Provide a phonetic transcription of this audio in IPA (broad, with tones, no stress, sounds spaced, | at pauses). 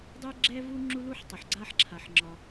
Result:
dˤ e˥ ɡ͡ǁ ɛ˥ v u˥ ŋ͡ǁ u˥ l u˥ ħ tˤ ʌ˩ ħ ɡ͡ǀ a˥ ħ ǁʰ a˩ ħ ŋ͡ǁ ɒ˩